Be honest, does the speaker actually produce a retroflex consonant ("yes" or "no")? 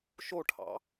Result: yes